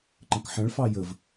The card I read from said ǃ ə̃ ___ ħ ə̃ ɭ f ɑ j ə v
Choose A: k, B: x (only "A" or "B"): A